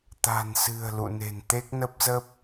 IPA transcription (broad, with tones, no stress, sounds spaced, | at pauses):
t̪ a̤˨˩ n s ɨ̤˨˩ ə̯ l ṵ˧˨ n e̤˨˩ n t̪ e˦˥ k̚ n ə˦˥ p̚ z ə˦˥ p̚